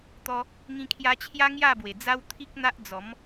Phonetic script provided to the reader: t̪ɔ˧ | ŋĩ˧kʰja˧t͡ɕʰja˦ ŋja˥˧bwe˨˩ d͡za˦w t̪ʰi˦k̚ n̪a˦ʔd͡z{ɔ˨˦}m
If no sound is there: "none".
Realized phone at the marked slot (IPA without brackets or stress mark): ɔ˨˦